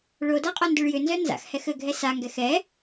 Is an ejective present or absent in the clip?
present